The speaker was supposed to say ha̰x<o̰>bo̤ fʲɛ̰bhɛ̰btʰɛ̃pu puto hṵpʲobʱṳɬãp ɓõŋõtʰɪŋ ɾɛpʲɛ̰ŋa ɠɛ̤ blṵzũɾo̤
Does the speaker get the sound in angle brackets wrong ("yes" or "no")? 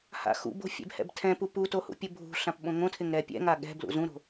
yes